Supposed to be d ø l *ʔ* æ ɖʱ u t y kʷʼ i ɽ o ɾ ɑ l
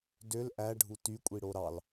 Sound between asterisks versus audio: correct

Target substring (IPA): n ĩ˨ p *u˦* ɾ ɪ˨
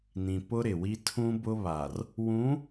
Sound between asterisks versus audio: incorrect: ʊ˦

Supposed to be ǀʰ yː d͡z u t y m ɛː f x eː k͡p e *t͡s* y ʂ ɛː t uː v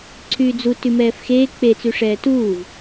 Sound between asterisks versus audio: correct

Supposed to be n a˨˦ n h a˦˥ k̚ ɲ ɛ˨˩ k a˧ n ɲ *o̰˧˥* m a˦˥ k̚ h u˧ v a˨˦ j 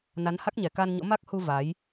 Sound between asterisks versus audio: correct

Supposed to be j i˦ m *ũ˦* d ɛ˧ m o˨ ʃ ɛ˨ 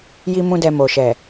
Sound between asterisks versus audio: correct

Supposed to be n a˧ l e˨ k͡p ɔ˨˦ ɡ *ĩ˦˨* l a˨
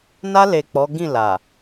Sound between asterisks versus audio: correct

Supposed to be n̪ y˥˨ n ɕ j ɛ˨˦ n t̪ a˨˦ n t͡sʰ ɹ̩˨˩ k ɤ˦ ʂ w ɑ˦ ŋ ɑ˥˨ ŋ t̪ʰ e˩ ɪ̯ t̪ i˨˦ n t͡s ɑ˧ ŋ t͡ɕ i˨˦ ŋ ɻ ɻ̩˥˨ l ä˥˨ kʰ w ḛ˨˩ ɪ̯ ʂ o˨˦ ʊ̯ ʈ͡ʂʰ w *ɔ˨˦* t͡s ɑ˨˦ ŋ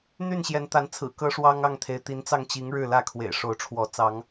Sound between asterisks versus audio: correct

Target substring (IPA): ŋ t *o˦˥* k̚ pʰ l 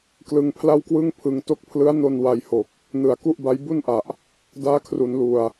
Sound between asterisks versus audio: correct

